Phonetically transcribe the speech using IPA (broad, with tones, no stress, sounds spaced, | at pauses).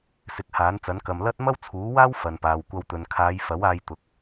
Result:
s ɪ˨ k̚ h aː˨˥ n t͡s ɐ˨˥ n k ɐ˨ m l ɐ˥ t̚ m ɐ˥ w t͡sʰ uː˨˥ w aː˥ w f ɐ˨ n p aː˨ w kʷ ɐ˧ w t̪ ɵ˨ n kʰ aː˨˧ j f ɐ˨˥ w aː˧ j t̪ ʊ˨˥ k̚